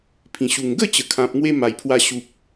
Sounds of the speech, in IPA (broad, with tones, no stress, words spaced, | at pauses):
pʰĩ˨˩ɕu˨˩ŋ ɡə˥˧t͡ɕə˨˩kʰã˨p̚ ŋwe˦ma˨˩jpʰwa˧ ɕu˨p̚